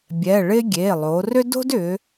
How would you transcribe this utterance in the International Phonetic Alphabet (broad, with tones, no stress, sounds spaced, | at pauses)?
bʲ ɛ˩˧˩ ɭ ɪ˥ ɡʲ e˩˧˩ lˠ o˩˧ r ʏ˥ d o̤˥ d ʏ˩˧